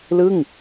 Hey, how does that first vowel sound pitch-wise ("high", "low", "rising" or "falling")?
falling